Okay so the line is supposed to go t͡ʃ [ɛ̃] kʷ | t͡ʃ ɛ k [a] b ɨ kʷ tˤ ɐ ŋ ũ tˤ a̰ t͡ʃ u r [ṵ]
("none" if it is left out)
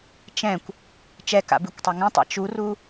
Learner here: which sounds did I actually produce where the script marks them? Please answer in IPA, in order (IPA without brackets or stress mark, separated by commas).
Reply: ɛ̃, a̰, u